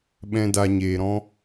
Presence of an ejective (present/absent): absent